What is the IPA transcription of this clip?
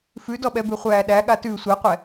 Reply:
fʉdɔɓɛ bʉχʷæːɗæ ɠatʉ sʷɛqʷɛ

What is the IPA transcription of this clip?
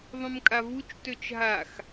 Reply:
ðˤũmkʼavut͡ʃ tøt͡ʃɦax

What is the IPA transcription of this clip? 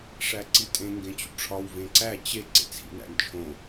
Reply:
ʂæǀitʼẽ ŋɡẽt͡ɕṵʈ͡ʂʰɒw vẽǀæ t͡ɕe ǀḛt͡sʰḭnæ̰nt͡ʃʰõ

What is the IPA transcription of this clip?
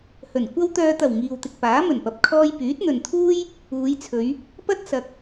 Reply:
hɵ˨˩n kʷɐ˧wt̪œː˨t̪ɐ˨˩w ŋiː˨wt̪ɪ˨k̚paː˨˥ mɵ˨˩npɐ˨p̚kʰɔː˧j pyː˨˥t̚n̪ɵ˨nt̪ʰuː˥j | uː˨˧jt͡sʰɵ˨˧ɥ | pɐ˥t̚sɐ˨k̚

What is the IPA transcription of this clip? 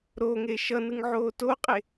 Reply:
ɾoŋe ʃʌnɯŋʕoː toqʼe

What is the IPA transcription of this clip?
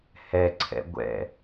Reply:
hɛǀʰɛ̰ ɡʷɛ̰

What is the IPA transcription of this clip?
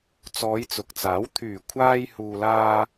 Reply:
t͡sɔː˨˧jt͡sʊ˨k̚t͡saː˨˥w t̪ʰyː˨˩kʷʰaː˧jhuː˨laː˧

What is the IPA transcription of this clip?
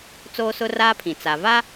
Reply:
t͡soː˦sʊ˦raː˦pʰĩ˨ t͡sa˨ va˦

